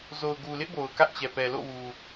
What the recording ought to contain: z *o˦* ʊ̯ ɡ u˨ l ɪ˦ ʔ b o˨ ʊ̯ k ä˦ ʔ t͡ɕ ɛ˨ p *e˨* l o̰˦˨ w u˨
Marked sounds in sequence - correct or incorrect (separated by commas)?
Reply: incorrect, incorrect